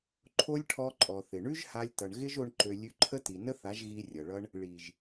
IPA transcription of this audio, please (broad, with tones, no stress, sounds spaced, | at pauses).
ǃʰ o˦ lʲ ʈʰ ɔ˧ ǃʼ ɔ˨ θ ɪ˨ ɳ ʉ˦ ʒ h a˧ lʲ t ʌ˨ ɳ ɣ ɪ˦ ʒ o˧ ɳ ǃ ø˨ lʲ ʉ˧ ǃʰ ə˦ t i˨ n ə˦ θ a˨˦ ʒ ɣ i˧ rʲ ʌ˨ ɭ ʌ˦ ɳ | ɭ i˨ ʒ